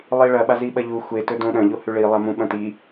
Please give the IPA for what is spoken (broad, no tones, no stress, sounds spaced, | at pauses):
lˠ i ɭ ɐ ɓ a z i ɓ ɐ ʎ u xʷ e t ɵ d õ ɗ ɐ̃ ʎ o h ʉ ɭ i lˠ a m ũ ɓ ɐ̃ t i